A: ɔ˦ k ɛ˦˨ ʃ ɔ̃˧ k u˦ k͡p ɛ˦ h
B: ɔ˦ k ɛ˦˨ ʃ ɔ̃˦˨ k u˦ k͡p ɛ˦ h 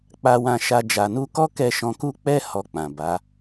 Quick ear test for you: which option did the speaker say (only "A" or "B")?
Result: A